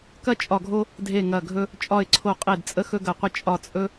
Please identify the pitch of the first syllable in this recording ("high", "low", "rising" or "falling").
high